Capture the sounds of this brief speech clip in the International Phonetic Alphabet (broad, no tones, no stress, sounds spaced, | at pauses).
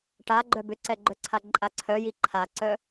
ʈ a ɡ͡ǃ œ b ʏ ǀ ɛ ɡ͡ǃ œ ǀʰ a ǃʼ a ǀʰ œ j i ǃʰ a ǀ œ